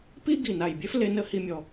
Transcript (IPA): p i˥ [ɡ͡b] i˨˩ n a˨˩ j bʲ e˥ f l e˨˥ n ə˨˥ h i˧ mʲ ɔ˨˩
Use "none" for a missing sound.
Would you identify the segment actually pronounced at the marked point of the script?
ɡ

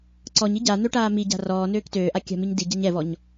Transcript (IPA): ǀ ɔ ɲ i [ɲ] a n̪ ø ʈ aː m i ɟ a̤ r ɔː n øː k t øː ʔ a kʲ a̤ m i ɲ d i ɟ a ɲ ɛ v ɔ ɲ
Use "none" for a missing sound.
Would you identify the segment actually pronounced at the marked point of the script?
ɟ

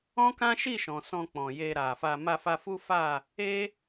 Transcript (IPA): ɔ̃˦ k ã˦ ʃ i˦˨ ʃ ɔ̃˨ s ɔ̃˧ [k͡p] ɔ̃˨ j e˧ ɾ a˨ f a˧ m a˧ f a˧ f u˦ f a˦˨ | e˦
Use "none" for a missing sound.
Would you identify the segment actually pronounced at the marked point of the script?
k͡p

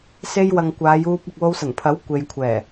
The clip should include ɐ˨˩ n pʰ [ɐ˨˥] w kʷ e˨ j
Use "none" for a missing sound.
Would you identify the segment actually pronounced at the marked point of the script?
ɐ˨˥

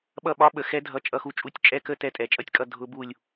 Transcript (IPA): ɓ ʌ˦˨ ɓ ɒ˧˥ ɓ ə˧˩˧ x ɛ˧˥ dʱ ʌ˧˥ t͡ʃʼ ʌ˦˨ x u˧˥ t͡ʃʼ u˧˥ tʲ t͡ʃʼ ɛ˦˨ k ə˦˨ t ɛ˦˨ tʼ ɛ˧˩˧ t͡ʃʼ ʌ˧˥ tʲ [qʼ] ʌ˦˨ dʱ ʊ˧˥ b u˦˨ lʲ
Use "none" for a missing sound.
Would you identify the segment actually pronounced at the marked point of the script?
kʼ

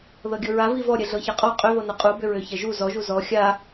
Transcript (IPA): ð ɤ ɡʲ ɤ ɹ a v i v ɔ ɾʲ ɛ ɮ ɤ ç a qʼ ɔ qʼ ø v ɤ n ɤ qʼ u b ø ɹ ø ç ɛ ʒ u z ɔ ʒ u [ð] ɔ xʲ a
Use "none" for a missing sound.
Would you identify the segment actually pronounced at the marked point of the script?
z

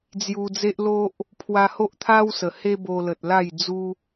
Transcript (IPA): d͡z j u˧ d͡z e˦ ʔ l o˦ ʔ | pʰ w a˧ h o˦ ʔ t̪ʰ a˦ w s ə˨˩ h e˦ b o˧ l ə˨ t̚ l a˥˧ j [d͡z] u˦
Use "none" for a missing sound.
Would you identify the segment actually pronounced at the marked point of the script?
d͡z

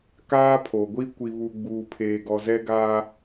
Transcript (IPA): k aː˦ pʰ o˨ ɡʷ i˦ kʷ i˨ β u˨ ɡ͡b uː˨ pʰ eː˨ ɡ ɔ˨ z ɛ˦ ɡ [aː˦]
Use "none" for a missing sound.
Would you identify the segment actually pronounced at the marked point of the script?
aː˦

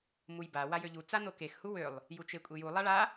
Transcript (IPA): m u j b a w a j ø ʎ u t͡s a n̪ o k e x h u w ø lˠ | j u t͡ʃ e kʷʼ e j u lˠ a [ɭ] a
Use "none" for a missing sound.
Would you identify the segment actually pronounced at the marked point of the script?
ɭ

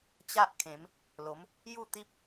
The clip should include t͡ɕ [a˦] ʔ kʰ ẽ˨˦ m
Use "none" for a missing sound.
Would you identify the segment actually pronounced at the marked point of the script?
a˦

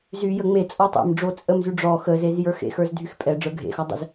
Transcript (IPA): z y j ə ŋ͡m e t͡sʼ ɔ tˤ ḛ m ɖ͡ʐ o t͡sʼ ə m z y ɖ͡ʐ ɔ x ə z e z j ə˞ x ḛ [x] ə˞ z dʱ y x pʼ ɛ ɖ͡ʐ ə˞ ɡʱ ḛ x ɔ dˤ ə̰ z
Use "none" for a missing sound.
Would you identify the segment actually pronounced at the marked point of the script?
x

